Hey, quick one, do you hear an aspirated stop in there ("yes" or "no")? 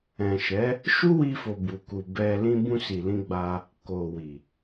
no